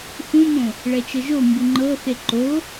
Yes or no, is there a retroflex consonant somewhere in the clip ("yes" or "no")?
yes